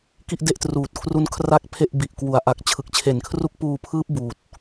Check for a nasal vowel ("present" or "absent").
absent